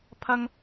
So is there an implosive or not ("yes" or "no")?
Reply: no